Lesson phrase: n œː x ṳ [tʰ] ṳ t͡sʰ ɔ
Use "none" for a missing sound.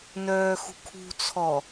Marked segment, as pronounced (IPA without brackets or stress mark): kʰ